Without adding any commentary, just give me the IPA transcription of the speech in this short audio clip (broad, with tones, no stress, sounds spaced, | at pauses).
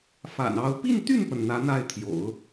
f a̰˨˩ n ɑ˧˥ ʊ̯ p i˥˧ n t̪ y˥˩ n p ə˩ n n̪ ä˧˥ n̪ a˥˩ ɪ̯ t̪ʰ j o̰˨˩˦ ʊ̯